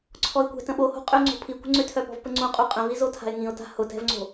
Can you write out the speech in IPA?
ǀʰɔɪ̯kʷɛ̤tə̃ ɓoho̤qʼʏʊ̯ŋ͡ǀo̤ pʰikʷə̤ ŋ͡ǀʏ tʰœpɔ̤vpəŋ͡ǀũ qʼuqʼə̃vi zotʰa̤ɪ̯ŋĩʊ̯ta̤ hʊtɛ̤vŋ͡ǀo̤

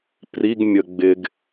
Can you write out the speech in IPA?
priɡ mʲəɡ͡bɪɡ

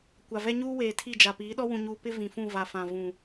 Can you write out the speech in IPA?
kʷa˨vɛ˦ɲuː˦weː˨ tʰi˦˨d͡ʒa˨ piː˨˦ɗɔ˦ wũ˨ɲuː˨ pɪ˦ vĩ˨fũ˦˨va˨fã˨ vũ˨

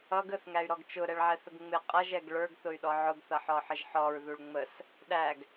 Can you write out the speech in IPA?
ʌ ɡəθŋæy̯ɾɔɡ t͡ʃʊɾɛɭʕɛθəɡ ŋ͡mɪ qʼʌʒɛɡ ɭə˞ɡθʊy̯ɗɔ ʕʊɡθʌħɔħəʒ ħɔɹðuɭ ŋ͡məs | ɗæɡ

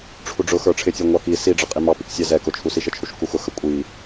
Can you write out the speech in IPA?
ʈ͡ʂʰuɖ͡ʐʊxə˞ ʈ͡ʂʰɪtʲə˞ ŋʷɑki siɖ͡ʐʌqʼi mɑpik sʲæzɛ kʊt͡ʃʰusi ʃət͡ʃʰuʃkuxʊ xəkʷʼi

